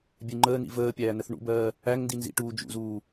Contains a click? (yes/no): yes